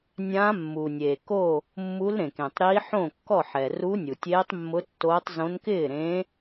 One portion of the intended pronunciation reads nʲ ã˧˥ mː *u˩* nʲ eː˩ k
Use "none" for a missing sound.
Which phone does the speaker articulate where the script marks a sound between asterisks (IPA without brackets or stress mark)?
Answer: u˩